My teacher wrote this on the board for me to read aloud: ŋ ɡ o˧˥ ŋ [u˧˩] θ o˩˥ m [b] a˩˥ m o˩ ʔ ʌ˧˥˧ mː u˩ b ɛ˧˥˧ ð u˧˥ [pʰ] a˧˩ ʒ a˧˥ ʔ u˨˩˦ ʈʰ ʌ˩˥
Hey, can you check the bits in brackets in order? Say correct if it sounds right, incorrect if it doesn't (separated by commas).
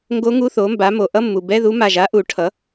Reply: incorrect, correct, incorrect